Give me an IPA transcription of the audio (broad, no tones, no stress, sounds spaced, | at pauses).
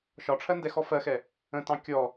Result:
ʃ ɒ ʈ͡ʂʰ ɜ n d ɛ x ɔ f ɜ x ɛ | ə̃ t ɑ̃ kʲ ɔ